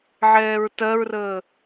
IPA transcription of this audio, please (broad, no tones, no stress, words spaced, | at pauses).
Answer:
ʕɛːɹtɜɹrəː